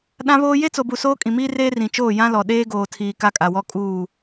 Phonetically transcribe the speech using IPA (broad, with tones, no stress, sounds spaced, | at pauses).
ɗ ã˦ β oː˦ j e˦ t͡s o˨ b u˨ s oː˦ kʼ ĩ˨ m iː˦ r eː˦ r ĩ˨ t͡ʃ oː˦˨ j ã˦ l ɔ˨ ɗ eː˦ ɡ oː˨ tʰ iː˨ k a˦ kʼ a˨ w ɔ˦ kʼ uː˦˨